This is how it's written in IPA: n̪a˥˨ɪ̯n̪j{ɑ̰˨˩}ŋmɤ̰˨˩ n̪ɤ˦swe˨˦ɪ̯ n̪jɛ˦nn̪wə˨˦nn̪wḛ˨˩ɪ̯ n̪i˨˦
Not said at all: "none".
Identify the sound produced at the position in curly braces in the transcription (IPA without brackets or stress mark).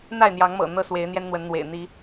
ɑ˨˦